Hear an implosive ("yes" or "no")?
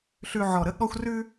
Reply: yes